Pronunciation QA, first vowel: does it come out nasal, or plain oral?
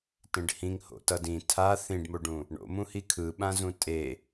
nasal